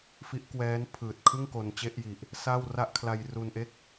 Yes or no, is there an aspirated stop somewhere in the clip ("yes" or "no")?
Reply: yes